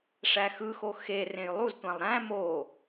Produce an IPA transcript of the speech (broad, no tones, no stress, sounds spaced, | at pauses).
ʂ æ x ɯ x o x e r ẽ j lˠ u z tʷ æ̃ lˠ ɾ æ̃ m o